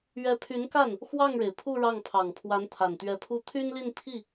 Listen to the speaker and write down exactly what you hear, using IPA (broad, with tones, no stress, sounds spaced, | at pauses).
ɥ ɛ˧˥ pʰ y˧˥ n k a˥˩ n | x w ɑ˥˩ ŋ ɻ e˩ ɪ̯ pʰ u˥˧ ɻ ɑ˥˩ ŋ pʰ ɑ˨˩ ŋ pʰ w a˧˥ n t̪ʰ a˨˩ n t̪ ɥ ɛ˧˥ pʰ u˥ t̪ʰ y˥ n l i˥˧ n pʰ i˥˩